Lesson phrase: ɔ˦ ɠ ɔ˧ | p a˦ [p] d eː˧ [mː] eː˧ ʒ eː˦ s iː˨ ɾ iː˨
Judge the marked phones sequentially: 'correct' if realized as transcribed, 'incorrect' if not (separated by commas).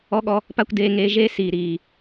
incorrect, incorrect